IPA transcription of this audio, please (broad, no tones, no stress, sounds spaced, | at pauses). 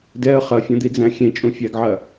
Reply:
d ɛ ə̯ χ ɐ fʲ ɐ̃ d̪ i d͡z æ̃ xʲ ẽ t͡ʃʼ ũ fʲ æ ɡ ʕ ɐ